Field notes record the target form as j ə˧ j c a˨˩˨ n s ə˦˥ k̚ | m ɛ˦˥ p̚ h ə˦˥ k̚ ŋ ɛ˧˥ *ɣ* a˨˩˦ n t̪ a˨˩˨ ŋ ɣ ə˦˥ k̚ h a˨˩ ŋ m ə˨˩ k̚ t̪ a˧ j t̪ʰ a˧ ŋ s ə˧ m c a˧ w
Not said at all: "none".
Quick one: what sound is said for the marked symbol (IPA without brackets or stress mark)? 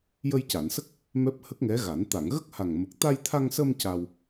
ɣ